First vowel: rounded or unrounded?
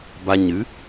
unrounded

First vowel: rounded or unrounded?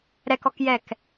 unrounded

